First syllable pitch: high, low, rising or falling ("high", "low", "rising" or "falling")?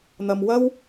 low